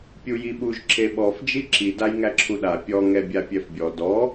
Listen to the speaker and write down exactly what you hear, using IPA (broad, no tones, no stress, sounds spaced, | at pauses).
pʲ u j i ɓ u ʒ ǁ e ɓ ɔ f d͡ʒ i ǁ i d a j ŋ æ ǁʰ u ɗ a pʲ ɔ ŋ ɛ bʲ a pʲ ɛ f bʲ ɔ d ɔ